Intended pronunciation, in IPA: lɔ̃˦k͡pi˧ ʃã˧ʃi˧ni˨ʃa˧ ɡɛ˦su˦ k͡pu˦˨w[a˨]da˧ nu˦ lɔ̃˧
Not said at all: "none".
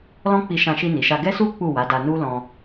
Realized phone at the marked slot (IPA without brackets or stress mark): a˨˦